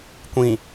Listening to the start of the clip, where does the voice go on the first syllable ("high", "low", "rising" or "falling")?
low